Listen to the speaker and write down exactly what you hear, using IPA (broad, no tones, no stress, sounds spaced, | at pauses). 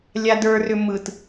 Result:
lʲ a d ə˞ r ʏ m ɯ t